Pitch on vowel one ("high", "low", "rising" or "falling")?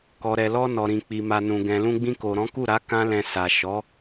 low